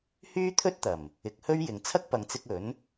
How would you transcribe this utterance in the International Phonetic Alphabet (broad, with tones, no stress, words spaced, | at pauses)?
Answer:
hyː˥t̪ʰɵ˥t̚t̪ɐ˨˩m | ɪ˨˥k̚hɵ˥ɥjɪ˨ŋ t͡sʰɐ˥k̚pɐ˨ŋt͡sɪ˧k̚ ɵ˨˥n